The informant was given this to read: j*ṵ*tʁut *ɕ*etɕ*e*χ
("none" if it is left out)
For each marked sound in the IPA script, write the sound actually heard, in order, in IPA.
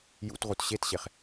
ṵ, ɕ, e

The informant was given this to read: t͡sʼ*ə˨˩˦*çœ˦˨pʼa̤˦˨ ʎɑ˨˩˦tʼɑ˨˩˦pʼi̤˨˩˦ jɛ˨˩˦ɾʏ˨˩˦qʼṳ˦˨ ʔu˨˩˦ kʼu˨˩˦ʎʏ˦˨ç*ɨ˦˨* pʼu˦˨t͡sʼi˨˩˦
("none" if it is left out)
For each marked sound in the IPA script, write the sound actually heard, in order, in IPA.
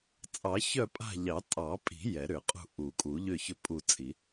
ɑ˨˩˦, ʏ˦˨

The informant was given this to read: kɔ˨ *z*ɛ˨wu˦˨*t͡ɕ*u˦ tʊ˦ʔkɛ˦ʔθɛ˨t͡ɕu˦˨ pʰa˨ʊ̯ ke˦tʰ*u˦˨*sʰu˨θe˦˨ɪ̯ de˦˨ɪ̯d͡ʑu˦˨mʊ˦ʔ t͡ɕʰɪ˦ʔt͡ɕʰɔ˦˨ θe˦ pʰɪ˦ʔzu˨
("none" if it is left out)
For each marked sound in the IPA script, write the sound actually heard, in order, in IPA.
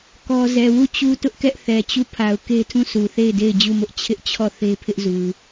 z, t͡ɕ, ũ˦˨

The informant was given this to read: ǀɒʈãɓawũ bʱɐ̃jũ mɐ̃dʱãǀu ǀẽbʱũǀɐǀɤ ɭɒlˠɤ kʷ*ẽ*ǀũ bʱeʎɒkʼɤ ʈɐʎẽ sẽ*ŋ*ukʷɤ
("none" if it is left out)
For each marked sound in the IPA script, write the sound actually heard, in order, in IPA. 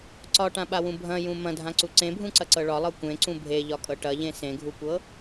ẽ, ɡʱ

